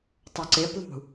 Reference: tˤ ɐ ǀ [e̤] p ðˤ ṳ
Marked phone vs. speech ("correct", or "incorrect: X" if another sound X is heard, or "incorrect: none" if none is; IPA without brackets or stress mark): incorrect: e